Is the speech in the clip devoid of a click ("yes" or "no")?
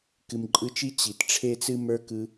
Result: no